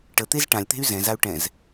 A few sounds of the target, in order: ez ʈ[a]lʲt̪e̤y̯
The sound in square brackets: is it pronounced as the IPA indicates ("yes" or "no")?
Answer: no